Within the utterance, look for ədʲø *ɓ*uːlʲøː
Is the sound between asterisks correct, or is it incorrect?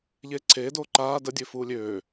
incorrect